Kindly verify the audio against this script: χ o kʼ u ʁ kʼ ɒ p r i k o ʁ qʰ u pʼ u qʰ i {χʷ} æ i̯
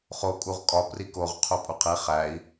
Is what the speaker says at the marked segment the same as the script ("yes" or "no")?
no